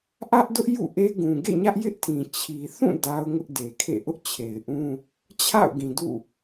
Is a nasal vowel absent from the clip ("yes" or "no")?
no